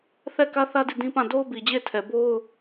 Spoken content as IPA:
θ ɛ˦˨ k ä˦ θ ä˦ d i˦˨ d ĩ˦ p ã˦˨ d o˦ ʊ̯ b i˨ d͡ʑ e˦˨ ɪ̯ tʰ ɛ˨ b o˦ ʊ̯

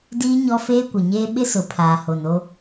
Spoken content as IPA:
d iː˦ ɲ ɔ˦ f eː˦ kʷ ɪ˨ ɲ eː˦ ɓ ɪ˦ s ʊ˨ pʰ aː˨ h o˨ n o˦

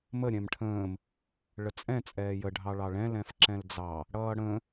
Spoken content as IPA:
m ə ɾʲ ɛ̃ m ʈʰ ə̃ː m | ɭ ə t͡sʼ ɛ̃ t͡sʼ ɛː j ə ɖʱ ɑ ɭ ɑ ɭ ɛ̃ l ɛ̃ f ǁ ɛ̃ l d͡z ɑ | ɽ ʌː ɽ ə̃

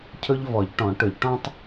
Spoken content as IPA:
cʰ ɵ˥ ʎ v ɔ˨˩˦ ʎ ʈ ɔ̃˨˩˦ ʈ ɵ˨˩˦ ʎ ʈ ɔ̃˥ tˤ

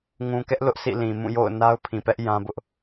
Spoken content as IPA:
ŋ ũ˨ k ɛ˦ ʔ l ʊ˦ ʔ sʰ ḭ˦˨ l ĩ˨ m ũ˦˨ j o̰˦˨ ʊ̯ n a˦ ʊ̯ pʰ ĩ˨ p ɛ˦ ʔ j ã˦ b ʊ˦ ʔ

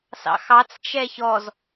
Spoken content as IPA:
s ɑ̰ x ɑ t͡s t͡ʃ ɛ ç ɔ z

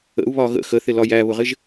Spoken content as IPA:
ə̰ u̯ β ɒ ɣ ə̰ x ə θ ɪ l ɒ j æ β ʊ ʁ ɪ ʒ

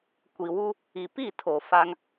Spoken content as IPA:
kʷ i˨ w u˦ | i˨ p i˦˨ tʰ o˨ f a˦ ŋ

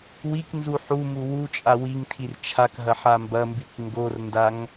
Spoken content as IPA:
w i k n z u ħ u m u w u t͡ʃʼ a w i ŋ tʰ i r t͡ʃʰ a k ɦ ɐ ħ a m b ɐ m b i k ŋ ɡ o r n d a ŋ

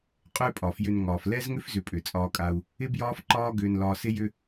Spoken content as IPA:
qʼ ʏː˦ pʼ ɒ˨ f j ʏ˧ n ŋ ɒː˨ f l ɛ˦ z ŋ ʏ˦ f z ʏ˨ pʼ ʏ˨ t͡sʼ ɒː˧ kʼ a˧ u̯ | ɪ˦ b j ɒː˦ f ǃ ɒː˦ ɡ ʏː˧ n l ɒː˧ s ɪ˦ j ʏ˦

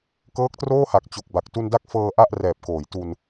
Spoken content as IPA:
k ɤː˦˥ k̚ t r oː˥˩ h a˨˩ k̚ t͡ɕ o˨˩ k̚ b a˨˩ k̚ t u˧ n d a˦˥ k̚ f ɤː˧ ʔ a˥˩ ʔ r ɛː˨˩ p̚ k oː˩˦ j t u˧ n

